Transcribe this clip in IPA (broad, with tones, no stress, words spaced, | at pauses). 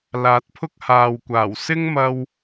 laː˨˥t̚pʰʊ˥k̚haː˨wkʷaː˨˩w sɪ˥ŋmɐ˧w